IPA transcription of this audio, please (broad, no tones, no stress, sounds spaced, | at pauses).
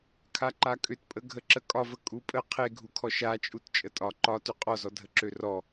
kʰ a ǃ a kʼ ʏ t pʼ ə ɡʱ ə ǁ ə kʼ ɒ v ə kʼ u pʼ ə qʰ e ɡʱ u kʰ ɔ ʃ a t͡ʃʼ u t t͡ʃʼ ə tʼ ɒ ǃ ɒ t ʏ qʼ ɔ z ɔ dʱ ə ǁ ø r ɔ